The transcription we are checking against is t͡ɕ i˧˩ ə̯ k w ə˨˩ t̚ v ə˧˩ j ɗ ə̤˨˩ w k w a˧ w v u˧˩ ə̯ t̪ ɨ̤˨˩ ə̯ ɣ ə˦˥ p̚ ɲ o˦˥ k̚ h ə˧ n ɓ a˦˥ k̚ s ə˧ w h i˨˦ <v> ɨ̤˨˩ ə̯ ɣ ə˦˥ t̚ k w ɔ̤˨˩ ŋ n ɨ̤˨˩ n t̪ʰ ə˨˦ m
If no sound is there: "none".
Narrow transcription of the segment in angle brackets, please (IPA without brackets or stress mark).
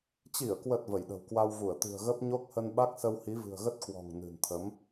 v